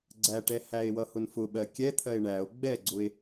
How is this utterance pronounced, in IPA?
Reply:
ɡ͡ǀ æ ʈ ɛ h æ e̯ w ʌ h ʊ n f ʊ ɓ ɜ kʲ ɛ t̪ʰ ɜ e̯ ɳ æ o̯ ɡ͡b ɛ ɡ͡ǀ ʊ e̯

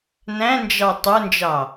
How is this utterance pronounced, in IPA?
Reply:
n æ̃ n d͡ʒ ɑ tˤ ə˞ n d͡ʒ ɑ

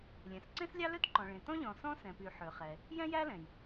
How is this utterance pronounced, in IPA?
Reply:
lʲ ɛ̃˩ s ǀ ẽ˥ s lʲ ɑ˥ l ø˥ t ǃ ɔ̃˩ ɭ ẽ˩ t ɔ̃˥ ʎ ɔ̃˩ s ɔ̃˥ s ɛ̃˩ p y˩ ħ ø˩ χ ɛ˩ | j ɛ̃˥ j æ˥ l ɛ̃˩ j

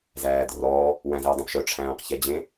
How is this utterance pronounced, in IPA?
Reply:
z æː d r ɔː | w æ̃ z e w dˤ ẽ p ʃ œ ʈ͡ʂʰ æ̃ː q ç ɛ d͡ʑ ẽ

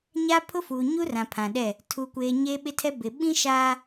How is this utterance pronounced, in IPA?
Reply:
ɲ a˦ pʰ ʊ˦ f uː˨ ɲ u˦ r ã˨ pʰ ã˨ ɗ ɛ˦˨ | tʰ u˨ kʷ eː˨ ɲ eː˦ ɓ ɪ˦ tʰ ɛ˦ b ɪ˨ ɓ ĩ˦ ʃ aː˦

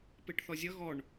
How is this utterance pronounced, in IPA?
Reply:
p e ʈ θ ɔ zʲ ʌ ɣ ɔ ɳ

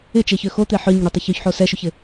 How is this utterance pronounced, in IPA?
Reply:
ɪ t͡ʃ e ç ø x o t̪ e ħ œ ɲ ɪ ɳ y tˤ ɪ ç y ç ħ o s ɛ ʃ y ç ɪ

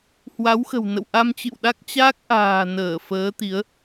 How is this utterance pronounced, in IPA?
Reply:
h w a˨˦ w x ə̤˨˩ w n ə̰˧˨ w ʔ a˧ m t͡ɕ ɨ̰˧˨ w ɗ a˦˥ k̚ t͡ɕ aː˦˥ k̚ ʔ a̤ː˨˩ n əː˧˩ f əː˨˦ t̪ i˨˦ ə̯

